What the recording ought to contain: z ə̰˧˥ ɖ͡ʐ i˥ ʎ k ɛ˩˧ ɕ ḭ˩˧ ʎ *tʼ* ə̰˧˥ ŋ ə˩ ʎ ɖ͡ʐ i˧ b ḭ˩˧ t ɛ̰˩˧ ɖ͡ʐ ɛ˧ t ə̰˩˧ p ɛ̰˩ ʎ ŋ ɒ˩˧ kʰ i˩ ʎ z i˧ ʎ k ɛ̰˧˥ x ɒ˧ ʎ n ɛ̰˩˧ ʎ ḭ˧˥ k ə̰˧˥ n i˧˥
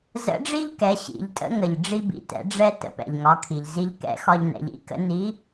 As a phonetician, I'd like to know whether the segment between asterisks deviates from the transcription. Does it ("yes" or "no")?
no